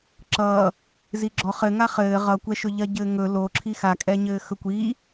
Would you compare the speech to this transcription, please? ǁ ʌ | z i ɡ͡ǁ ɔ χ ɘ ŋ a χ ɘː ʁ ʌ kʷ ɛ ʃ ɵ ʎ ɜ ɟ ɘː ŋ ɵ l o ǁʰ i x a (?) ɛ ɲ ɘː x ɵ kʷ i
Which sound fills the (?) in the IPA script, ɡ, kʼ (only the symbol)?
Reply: kʼ